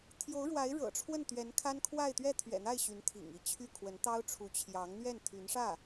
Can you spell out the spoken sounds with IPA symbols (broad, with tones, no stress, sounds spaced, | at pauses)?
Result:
t̪ʰ j o˧˥ ʊ̯ ɻ w a˧˥ ɪ̯ ɻ ɤ̰˨˩ ʈ͡ʂʰ w ə˥˩ n t̪ ɥ ɛ˧˥ n kʰ a˥ n kʰ w a˥˧ ɪ̯ t̪ ɥ ɛ˥˩ t̪ʰ ɥ ɛ̰˨˩ n̪ a˥˩ ɪ̯ ɕ y˧˥ n t̪ʰ ḭ˨˩ ŋ i˥˧ t͡ɕʰ y˥˩ kʰ w ə˧˥ n t̪ ɑ˥ ʊ̯ ʈ͡ʂʰ u˧˥ t͡ɕʰ j ɑ˧˥ ŋ n̪ ɥ ɛ˥˩ n t̪ʰ y˧˥ n ʂ ä˥˩